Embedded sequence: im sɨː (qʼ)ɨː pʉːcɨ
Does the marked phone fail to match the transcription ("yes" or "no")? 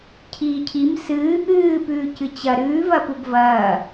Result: yes